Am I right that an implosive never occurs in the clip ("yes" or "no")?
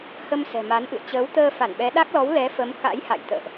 no